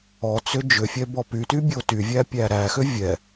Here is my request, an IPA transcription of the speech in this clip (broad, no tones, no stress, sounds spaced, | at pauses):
ɔ t͡s ʏ d͡ʒ ʏ fʲ ɛ b ɔ p y t y bʲ o t y vʲ æ pʲ æ ɾ æ x ʏ vʲ ɛ